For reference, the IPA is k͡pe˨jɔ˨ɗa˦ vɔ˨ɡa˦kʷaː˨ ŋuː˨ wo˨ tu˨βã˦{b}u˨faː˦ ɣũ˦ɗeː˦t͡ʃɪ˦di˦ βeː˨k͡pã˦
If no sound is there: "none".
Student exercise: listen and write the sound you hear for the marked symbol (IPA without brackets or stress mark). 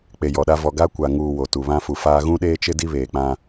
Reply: f